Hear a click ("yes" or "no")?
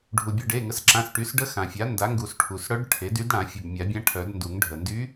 yes